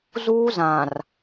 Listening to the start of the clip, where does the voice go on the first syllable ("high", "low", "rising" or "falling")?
high